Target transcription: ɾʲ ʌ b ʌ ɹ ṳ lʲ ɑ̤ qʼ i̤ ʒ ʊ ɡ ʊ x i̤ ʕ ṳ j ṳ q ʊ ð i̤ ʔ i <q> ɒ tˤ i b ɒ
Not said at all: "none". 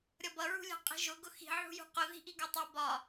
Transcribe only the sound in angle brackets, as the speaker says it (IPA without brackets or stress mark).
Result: ɡ